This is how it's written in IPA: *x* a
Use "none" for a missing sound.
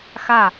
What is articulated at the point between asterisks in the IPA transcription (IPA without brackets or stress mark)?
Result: x